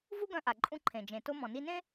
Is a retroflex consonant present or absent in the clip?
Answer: absent